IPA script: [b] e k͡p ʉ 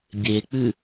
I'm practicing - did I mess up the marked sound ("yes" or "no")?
yes